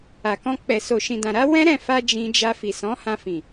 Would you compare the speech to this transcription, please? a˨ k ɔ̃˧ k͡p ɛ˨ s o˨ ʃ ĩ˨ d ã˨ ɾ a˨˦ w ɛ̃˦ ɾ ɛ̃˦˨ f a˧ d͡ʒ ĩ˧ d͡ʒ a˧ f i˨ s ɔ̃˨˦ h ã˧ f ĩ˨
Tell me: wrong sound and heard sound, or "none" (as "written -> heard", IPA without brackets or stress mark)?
none